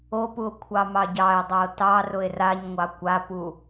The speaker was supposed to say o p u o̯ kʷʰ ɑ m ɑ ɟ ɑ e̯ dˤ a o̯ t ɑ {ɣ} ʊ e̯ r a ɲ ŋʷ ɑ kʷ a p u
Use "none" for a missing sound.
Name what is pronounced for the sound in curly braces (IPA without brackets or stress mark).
r